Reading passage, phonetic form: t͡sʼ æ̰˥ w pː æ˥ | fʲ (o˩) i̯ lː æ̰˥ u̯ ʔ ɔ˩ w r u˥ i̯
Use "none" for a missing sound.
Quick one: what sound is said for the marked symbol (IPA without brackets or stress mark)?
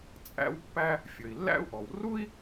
ɵ˩